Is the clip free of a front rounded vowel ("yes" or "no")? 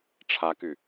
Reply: no